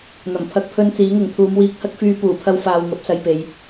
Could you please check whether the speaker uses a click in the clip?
no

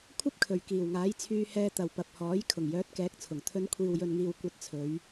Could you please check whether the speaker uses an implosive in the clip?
no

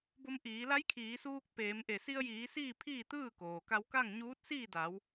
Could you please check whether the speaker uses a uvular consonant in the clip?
no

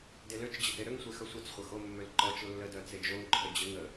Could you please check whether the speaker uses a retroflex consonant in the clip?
no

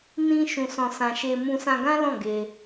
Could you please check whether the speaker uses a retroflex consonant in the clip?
no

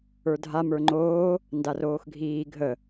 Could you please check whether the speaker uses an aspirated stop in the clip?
no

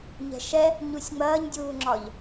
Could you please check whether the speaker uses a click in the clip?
yes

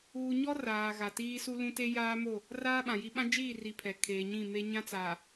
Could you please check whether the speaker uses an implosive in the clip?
yes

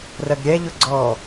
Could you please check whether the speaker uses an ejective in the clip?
no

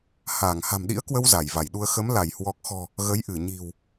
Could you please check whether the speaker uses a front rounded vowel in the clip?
no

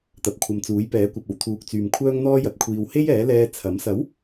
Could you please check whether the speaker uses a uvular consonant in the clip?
no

